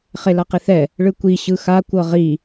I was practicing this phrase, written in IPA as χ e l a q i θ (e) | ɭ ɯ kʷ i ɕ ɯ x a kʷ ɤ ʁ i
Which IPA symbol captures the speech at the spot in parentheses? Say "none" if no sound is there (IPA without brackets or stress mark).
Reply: ɛ